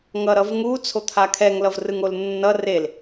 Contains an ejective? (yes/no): no